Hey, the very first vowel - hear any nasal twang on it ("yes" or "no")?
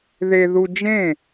no